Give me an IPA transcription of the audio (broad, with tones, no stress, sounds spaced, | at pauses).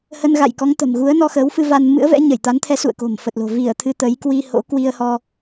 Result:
h ə˧ n ɣ a̰˧˨ j k ɔ˨˦ ŋ t̪ ə̤˨˩ m ɣ u˨˦ ə̯ n ɔ˧ x əː˨˦ w f ɨ˧ v a˧ n m ɨ̰˧˥ ə̯ v ɛ̰˧˥ ɲ ə˧˩ j t̪ a˨˦ n t̪ʰ ɛ˨˦ s ṵ˧˨ ə̯ k o̤˨˩ m f ə˨˩ t̚ l o̤˨˩ v i˧˩ ə̯ t̪ʰ ɨ˧ t̪ ə˨˦ j k w i˧ h o̰˧˥ k w i˧ ə̯ h ɔ˧